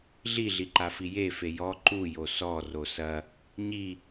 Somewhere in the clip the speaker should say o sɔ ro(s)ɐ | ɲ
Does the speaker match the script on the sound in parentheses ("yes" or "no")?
yes